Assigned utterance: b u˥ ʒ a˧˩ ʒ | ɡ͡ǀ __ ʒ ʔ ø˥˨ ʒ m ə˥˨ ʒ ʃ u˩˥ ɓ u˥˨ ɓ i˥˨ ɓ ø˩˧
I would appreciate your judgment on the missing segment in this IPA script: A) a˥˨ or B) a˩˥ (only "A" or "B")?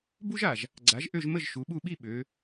B